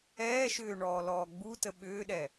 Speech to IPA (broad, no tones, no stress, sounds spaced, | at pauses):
ɛː ʃ ʏː ɳ ɔː l ɔː ɡ͡b u t ə ɓ ʏː ɗ ɛ